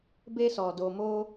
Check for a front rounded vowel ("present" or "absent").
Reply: absent